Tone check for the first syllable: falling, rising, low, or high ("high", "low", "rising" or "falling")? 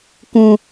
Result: high